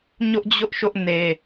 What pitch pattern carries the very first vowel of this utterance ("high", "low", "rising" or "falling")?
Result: high